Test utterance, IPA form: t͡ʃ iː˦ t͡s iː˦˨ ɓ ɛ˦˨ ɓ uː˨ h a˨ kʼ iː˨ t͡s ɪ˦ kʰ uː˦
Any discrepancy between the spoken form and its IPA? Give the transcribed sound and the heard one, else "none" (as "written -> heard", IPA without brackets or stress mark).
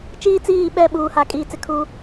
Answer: none